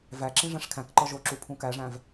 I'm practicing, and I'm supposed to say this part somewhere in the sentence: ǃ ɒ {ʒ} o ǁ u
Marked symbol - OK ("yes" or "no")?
yes